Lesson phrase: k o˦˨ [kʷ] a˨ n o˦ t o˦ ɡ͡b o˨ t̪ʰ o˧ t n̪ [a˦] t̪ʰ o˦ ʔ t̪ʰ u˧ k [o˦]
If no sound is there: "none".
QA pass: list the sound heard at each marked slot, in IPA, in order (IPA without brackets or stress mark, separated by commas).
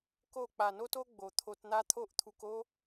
k͡p, a˦, o˦